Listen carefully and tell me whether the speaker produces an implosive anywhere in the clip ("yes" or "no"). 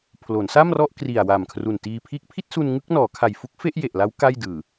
no